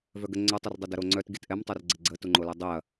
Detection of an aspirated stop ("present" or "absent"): absent